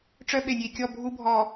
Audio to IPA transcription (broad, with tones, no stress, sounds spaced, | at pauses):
ʈ͡ʂ œ˦ ɓ e˨ nʲ i˨ kʲ ɔ˦˨ bʱ u˦ bʱ ɔ˨